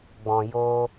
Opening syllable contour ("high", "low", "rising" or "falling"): low